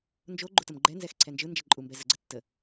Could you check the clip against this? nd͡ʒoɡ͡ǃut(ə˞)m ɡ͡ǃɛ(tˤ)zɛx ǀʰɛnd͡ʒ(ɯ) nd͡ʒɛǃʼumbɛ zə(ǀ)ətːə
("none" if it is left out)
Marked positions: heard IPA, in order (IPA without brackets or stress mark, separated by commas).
ə, n, ɯ, ɡ͡ǀ